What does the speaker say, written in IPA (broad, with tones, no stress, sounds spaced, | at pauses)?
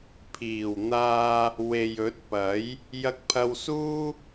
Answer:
pʰ iː˨˩ w n̪ aː˧ | w e˨ j ɵ˨˥ t̚ p ɐ˨˥ j | j ɐ˧ k̚ pʰ ɐ˧ w s uː˥